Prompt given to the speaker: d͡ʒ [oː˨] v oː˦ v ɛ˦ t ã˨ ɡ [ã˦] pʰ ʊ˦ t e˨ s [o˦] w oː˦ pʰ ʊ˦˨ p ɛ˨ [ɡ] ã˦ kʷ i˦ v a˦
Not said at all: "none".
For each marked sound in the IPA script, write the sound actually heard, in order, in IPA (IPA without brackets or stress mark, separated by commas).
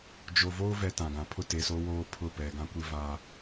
o˨, ã˨, o˦, ɡ